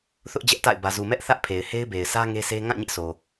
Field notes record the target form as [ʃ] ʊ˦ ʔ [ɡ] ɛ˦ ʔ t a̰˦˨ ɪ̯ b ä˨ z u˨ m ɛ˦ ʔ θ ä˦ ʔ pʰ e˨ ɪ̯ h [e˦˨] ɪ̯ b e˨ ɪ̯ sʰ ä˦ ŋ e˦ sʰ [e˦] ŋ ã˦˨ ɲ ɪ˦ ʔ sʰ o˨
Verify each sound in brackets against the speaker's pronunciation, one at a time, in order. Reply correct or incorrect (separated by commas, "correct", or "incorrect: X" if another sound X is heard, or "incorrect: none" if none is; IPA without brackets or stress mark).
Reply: incorrect: θ, incorrect: d͡ʑ, incorrect: e˦, correct